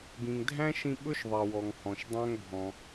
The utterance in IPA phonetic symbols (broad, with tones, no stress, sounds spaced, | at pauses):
ɡ ĩ˨ ŋ dʱ æ̃˦ ʃ ĩ˧ ɓ ɵ˦ ʃ ðˤ ɛ˨ w ɔ˨ ŋ h ɔ̃˨ ʃ dˤ œ̃˦ ŋ bʱ ɔ̃˧